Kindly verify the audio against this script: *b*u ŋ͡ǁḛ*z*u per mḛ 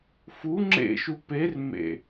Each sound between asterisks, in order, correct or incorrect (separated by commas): incorrect, incorrect